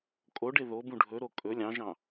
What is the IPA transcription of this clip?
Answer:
kʼ o ɖ e ð o b ũ ɖʱ ɵ ɾ o kʼ ɵ lʲ ɑ̃ ʒ ɑ̃

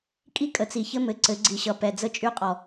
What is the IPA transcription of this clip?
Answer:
kʼ i˦ kʼ ə˨ t͡s i˨ ç ɘ˦ m ɘ˨ ǀ ɘ˨˦ ɡ͡ǀ i˨ ɕ ʌ˨ p ɛ˨ d͡z ə˦ t͡ʃʼ y˦ qʼ ɔ˨

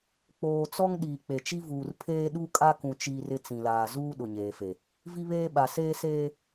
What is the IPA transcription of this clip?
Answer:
k͡p oː˨ t͡s ɔ˦ ŋ ɗ iː˨ k͡p e˨ t͡ʃ i˦ v uː˨ r pʰ eː˦ ɗ u˦ kʼ a˦ k ũ˨ t͡ʃ iː˦ r ɪ˦ t͡s ĩ˨ l aː˨ z uː˦ ɗ ʊ˨ ɲ eː˨ f e˨ | v i˦ β eː˦ ɓ a˨ s eː˦ s eː˦

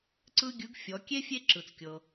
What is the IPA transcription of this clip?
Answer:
ǀ ɯ˥ ɡʲ ɯ˧˥ ɡ fʲ ɔ˩˧ kʲ e˥ fʲ e˥ ǁ ɯ˩ t͡s kʲ ɤ˩

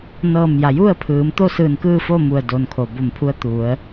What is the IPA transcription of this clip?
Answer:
n ɤː˧˩ m j a˩ j u˥˨ ə̯ pʰ ɯː˩˧ m t̪ o˥˨ s ɯː˧˩ n k ɯː˥˨ f o˥˨ m u˧˩ ə̯ d o˩ n kʰ o˩ b o˧˩ m pʰ u˧˥ ə̯ t̪ u˩˧ ə̯

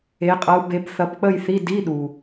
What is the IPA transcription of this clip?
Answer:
e˧˥ qʼ ɐ˧˥ u̯ b e˧˥ b θ ɐ˧˥ p k͡p ə˥˧ j θ i˧˥˧ d i˧˥˧ ɗ u˨

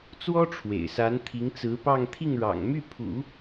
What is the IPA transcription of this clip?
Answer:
t͡s w ɔ˥ ʈ͡ʂʰ w ḛ˨˩ ɪ̯ s a˧˥ n t̪ʰ i˧˥ ŋ t͡s ɹ̩˧˥ p ɑ˥˧ ŋ t̪ʰ i˥˩ ŋ ɻ ɑ̰˨˩ ŋ m y˥˩ pʰ ṵ˨˩˦

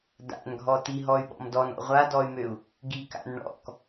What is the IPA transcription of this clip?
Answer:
d a̰ n ɡʱ ɔ t i ɦ ɔ y̯ ɓ ɔ̰ m d ɔ n ɔ̰ ʁʷ a d ɔ y̯ m ø u̯ | ɡ i k a̰ n ɳ ɔ̰ k

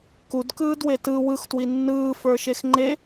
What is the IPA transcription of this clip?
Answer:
k u d k ɯː d w e t ɯ w ɯ x t w i nː ɯː f ə˞ ʃ e x ŋ͡ǃ e

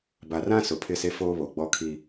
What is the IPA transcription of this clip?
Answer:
b a˨ r ã˦ s ʊ˨ pʰ ɪ˦˨ s e˦ f oː˦ β o˨ ɡ͡b ɔ˦ kʰ i˦

